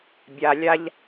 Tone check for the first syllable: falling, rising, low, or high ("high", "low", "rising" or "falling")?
low